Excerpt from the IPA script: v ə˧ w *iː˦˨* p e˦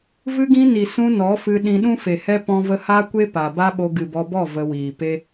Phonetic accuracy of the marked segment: incorrect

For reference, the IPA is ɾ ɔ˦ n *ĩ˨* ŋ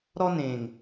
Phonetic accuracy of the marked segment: incorrect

